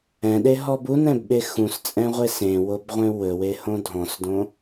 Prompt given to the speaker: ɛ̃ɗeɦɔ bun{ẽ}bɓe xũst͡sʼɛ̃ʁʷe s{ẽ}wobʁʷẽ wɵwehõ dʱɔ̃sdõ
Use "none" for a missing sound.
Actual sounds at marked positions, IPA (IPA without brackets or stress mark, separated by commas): ɛ̃, ẽ